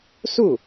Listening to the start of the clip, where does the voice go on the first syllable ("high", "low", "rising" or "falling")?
falling